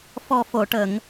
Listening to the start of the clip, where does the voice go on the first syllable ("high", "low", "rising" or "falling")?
low